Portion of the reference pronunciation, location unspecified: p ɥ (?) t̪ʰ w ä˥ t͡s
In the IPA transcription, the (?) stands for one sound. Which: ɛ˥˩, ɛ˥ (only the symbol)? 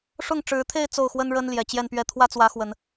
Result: ɛ˥˩